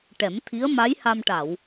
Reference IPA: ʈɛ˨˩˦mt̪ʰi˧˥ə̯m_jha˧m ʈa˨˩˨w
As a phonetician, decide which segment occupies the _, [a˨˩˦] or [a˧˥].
a˧˥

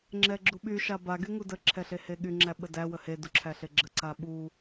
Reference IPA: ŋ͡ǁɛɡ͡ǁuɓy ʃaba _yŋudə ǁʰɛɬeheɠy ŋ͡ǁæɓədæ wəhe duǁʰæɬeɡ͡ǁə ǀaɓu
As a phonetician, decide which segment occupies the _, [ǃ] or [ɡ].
ɡ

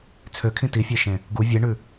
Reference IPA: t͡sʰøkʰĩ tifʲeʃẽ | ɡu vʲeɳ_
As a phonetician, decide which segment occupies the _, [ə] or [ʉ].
ʉ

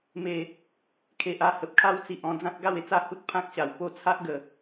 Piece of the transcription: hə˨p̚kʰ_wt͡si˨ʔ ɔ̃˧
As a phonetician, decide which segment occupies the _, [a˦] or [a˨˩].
a˦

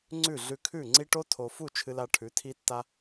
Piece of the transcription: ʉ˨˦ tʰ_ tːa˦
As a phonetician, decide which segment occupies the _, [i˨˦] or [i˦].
i˦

